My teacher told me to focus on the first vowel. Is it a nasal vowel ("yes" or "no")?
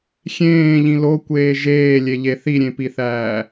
yes